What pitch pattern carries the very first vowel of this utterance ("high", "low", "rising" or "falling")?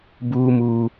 high